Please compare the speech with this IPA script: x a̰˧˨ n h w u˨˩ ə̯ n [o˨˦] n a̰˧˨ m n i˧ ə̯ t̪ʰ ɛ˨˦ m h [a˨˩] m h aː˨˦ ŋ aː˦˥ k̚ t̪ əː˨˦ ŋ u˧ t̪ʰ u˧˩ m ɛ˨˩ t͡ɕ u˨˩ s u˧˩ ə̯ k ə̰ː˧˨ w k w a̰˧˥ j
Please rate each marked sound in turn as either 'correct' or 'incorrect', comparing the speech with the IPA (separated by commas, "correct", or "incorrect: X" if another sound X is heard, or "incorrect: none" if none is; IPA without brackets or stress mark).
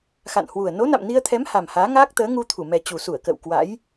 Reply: correct, correct